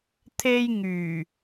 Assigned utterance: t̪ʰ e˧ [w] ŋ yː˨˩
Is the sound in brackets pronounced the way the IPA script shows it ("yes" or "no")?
no